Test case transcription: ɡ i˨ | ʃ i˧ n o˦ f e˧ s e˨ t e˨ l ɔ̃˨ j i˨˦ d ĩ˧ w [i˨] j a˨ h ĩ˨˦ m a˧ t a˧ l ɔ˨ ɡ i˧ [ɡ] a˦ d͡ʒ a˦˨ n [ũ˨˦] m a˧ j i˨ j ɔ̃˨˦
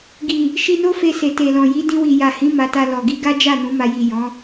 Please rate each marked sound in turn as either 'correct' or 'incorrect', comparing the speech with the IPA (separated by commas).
correct, correct, correct